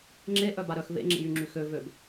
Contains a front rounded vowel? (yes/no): yes